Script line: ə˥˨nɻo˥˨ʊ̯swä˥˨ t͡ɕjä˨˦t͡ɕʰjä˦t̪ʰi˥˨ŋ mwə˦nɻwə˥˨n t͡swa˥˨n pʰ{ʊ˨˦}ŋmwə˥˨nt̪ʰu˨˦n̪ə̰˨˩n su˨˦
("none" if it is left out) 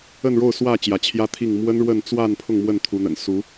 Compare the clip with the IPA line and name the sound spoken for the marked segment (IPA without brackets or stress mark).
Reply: ʊ˥˨